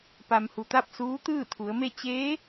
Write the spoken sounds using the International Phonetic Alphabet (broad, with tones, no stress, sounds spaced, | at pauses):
p a˩ m h u˩ t̪ a˥˨ p̚ s uː˧˥ t̪ ɯː˥˨ t̪ʰ u˩˧ ə̯ m e˥˨ t͡ɕ eː˧˥